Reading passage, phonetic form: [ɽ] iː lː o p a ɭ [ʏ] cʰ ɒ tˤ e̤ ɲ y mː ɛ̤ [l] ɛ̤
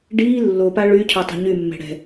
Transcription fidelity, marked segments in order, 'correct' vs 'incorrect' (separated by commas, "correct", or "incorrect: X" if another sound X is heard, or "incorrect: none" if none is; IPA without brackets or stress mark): incorrect: ɖ, incorrect: y, incorrect: ɽ